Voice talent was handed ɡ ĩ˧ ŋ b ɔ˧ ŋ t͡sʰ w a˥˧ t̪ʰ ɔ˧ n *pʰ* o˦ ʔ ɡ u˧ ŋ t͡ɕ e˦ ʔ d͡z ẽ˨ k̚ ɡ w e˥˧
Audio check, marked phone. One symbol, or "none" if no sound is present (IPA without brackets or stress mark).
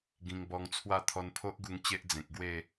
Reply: pʰ